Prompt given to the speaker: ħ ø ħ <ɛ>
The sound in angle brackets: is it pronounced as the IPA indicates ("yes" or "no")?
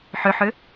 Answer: no